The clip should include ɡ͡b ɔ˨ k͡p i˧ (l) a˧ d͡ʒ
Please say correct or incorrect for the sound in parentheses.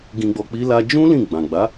correct